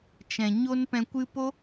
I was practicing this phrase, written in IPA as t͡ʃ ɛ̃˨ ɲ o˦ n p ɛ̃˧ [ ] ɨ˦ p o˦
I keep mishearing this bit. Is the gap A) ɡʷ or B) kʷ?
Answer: B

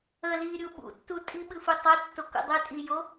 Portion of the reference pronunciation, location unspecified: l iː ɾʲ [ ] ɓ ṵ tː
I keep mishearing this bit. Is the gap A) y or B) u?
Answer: B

